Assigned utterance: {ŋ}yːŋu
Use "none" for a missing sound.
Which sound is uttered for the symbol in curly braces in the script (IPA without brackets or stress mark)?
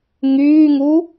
ŋ